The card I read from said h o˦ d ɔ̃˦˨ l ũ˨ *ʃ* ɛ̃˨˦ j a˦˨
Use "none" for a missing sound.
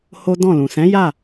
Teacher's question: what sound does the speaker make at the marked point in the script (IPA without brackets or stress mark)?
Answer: s